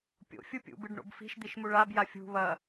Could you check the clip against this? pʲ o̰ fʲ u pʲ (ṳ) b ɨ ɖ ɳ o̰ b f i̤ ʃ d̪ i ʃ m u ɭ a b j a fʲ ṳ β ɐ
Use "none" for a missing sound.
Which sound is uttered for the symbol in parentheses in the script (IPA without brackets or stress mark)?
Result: ṵ